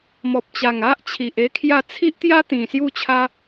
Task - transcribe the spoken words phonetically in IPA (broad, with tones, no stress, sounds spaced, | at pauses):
m ɔ˨ p̚ t͡ɕ a˨˩ ŋ a˦ ʔ t͡ɕʰ i˨ ʔ e˦ kʰ j a˥˧ t͡sʰ i˦ ʔ t̪ j a˦ t̪ ĩ˨˩ s j u˥˧ t͡ɕʰ a˦